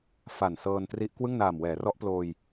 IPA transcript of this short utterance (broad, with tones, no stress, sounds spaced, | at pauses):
f a˨˩ n s ɤː˧ n t r i˦˥ ʔ k w ɯ˥˩ ŋ n aː˨˩ m w ɛː˩˦ r ɔ˦˥ ʔ p l oː˧ j